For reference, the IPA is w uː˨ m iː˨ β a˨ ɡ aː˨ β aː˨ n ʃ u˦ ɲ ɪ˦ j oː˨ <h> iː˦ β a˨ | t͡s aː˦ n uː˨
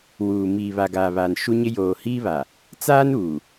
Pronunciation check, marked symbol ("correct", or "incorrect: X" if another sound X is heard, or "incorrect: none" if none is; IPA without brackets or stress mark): correct